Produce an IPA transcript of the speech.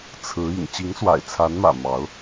t͡sʰ ɹ̩˧˥ ḭ˨˩ ŋ t͡ɕ i˧˥ ŋ s w a̰˨˩ ɪ̯ t͡sʰ a˧˥ n m ä̰˨˩ m ɑ˧˥ ʊ̯

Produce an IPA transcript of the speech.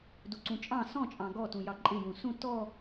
d u ǀ ũ t͡ʃʼ ɑ̃ s ɔ̃ t͡ʃʼ ɑ̃ ɡ ɔ t ũ j ɑ ǃʼ ɪ j ũ s ũ t ɔ

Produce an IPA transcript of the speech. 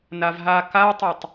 n a v ɦ a k a tˤ e tˤ

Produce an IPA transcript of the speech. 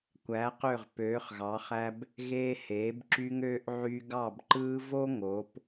kʷ æ˩˧ q ø˧˩ ʁ p øː˩˧ χ ɣ ɑ˩˧ χ æ˧ b | ɣ eː˧ h eː˩˧ b ǁ y˧ ŋ øː˧ ʔ ʕ y˧ ɡ ɑ˧˩ b ǃ ɯː˧ v o˥ ŋ o˩˧ p

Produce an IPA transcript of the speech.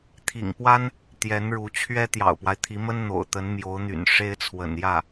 t̪ʰ ḭ˨˩ ŋ p w a˥ n | t̪ j ɛ˧˥ n ɻ u˧˥ t͡ɕʰ ɥ ɛ˥ t̪ j ɑ̰˨˩ ʊ̯ p w a˦ ɪ̯ t̪ʰ i˧˥ m ə˥ n n̪ o̰˨˩ ʊ̯ t̪ ə˧˥ n m j o˧˥ ʊ̯ n̪ y̰˨˩ n ʂ e˥ ɪ̯ t͡sʰ w ə̰˨˩ n j ä˥˩

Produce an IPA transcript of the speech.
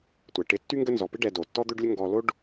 tʷ ɛ˨ ʈ ɪ˧ tː y˦ ŋ ɡ ə˦ n z ɔ˨ p ɪ˦ ɖ ɛ˧ d o˨ tː ɔ˦ d̪ ø˦ ɖ lʲ ə˦ ŋ ɡ ɔ˧ l o˦ ɖ

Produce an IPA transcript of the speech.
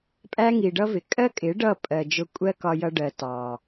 pʼ æ˦ ŋ i˨ ɖ ʌ˦ v ɪ˨ kʼ ɜ˦ kʼ ɪ˨˦ ɖ ʌ˦˨ pʼ ɜ˨ d͡ʒ ʊ˧ kʷʼ ɜ˦ k ɒ˧ j ʌ˧ ɖ ɜ˨ t ɑ˨

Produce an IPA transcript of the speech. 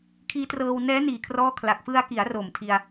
kʰ iː˦˥ t r ɤː˧ w n ɛː˦˥ n iː˨˩ kʰ r ɔː˥˩ kʰ l a˨˩ k̚ f ɯ˧ a̯ k i˩˦ a̯ r o˨˩ m tʰ i˧ a̯

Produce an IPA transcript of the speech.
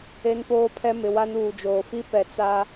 e˦ n p oː˦ pʰ ɛ˦ m ɪ˨ w a˦ n uː˨ d͡ʒ oː˨ f i˦ p ɛ˨ t͡s a˦

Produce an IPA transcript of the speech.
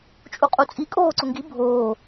t͡ʃʼ u qʼ u t͡sʼ i kʼ oː ǀ ʊ ŋ ɡ i bʱ oː

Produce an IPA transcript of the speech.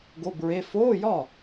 ɡ o˧˥˧ b ɹ e˧˥˧ f oː˧˥˧ j ɒ˥˩

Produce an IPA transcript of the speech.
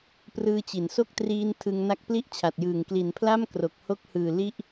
p r ɯː˦˥ t͡ɕ i˩˦ n s o˥˩ k̚ t r iː˧ n tʰ ɯ˧ ŋ n a˦˥ k̚ p l i˥˩ ʔ t͡ɕʰ a˨˩ t̚ j ɯː˨˩ ŋ k l i˩˦ n pʰ l a˥˩ m k r o˨˩ k̚ h o˦˥ k̚ h ɯː˨˩ l i˥˩ ʔ

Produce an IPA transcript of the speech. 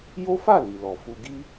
j o˦ f a˦˨ l i˨ l ɔ˨ f u˧ ɡ i˦

